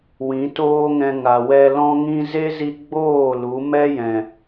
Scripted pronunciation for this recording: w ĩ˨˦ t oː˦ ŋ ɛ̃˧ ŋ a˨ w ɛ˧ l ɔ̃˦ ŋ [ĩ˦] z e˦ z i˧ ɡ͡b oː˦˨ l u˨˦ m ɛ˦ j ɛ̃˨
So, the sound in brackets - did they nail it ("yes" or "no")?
yes